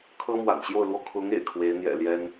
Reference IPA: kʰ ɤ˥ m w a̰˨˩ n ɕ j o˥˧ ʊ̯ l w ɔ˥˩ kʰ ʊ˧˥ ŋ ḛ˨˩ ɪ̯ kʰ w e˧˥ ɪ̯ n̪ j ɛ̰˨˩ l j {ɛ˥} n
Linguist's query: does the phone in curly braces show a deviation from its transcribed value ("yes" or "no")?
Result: no